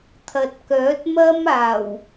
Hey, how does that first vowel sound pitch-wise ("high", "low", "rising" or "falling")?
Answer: low